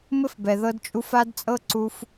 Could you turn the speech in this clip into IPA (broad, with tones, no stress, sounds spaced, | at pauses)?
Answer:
m ɘ˥ f b ɛ˩ ð ɤ˧ d t͡ʃʼ u˧ f a˥ d t͡sʼ ɤ˥ ǀ u˧ f